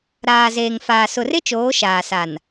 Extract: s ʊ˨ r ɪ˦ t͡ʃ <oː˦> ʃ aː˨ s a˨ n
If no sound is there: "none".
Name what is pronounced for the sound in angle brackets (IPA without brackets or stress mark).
oː˨˦